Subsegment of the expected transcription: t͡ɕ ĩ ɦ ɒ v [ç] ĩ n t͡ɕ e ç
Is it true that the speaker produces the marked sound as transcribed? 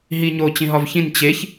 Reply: yes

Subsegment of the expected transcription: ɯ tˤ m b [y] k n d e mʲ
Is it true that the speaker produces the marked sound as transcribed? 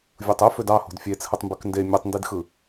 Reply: yes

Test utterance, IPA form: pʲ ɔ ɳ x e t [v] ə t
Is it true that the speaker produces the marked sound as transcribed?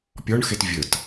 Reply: no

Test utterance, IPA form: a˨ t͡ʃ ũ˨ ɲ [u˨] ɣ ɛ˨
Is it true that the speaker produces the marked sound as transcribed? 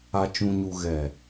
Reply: yes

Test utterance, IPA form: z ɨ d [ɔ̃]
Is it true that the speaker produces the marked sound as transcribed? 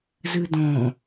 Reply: yes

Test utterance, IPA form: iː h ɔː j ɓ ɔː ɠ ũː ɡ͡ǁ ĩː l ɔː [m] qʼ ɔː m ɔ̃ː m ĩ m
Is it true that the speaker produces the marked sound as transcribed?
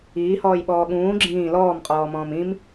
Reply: yes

